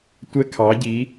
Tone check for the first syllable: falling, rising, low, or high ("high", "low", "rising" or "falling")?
high